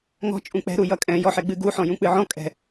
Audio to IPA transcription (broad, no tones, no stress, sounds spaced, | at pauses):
ŋ ɔ̤ t͡ʃʼ ũ k͡p ɛ̤ ɾ u j ʌ kʼ ɛ̃ j ɔ ħ ɛ ɡ͡b ɨ ɡ u ħ ɔ̃ j ũ k͡p ɨ ʕ ɔ̃ kʼ ɛ̤